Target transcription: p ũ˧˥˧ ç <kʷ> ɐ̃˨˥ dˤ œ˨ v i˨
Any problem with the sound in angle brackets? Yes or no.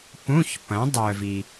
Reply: yes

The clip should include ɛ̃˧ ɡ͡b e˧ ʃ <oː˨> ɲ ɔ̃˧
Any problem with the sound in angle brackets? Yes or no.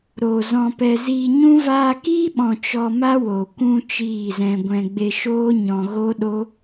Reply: yes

